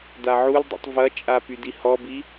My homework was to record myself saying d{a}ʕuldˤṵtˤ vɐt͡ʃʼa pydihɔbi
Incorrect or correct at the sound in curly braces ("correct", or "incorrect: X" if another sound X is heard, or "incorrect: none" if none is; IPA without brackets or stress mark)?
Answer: correct